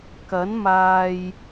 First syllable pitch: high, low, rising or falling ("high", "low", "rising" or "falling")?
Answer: rising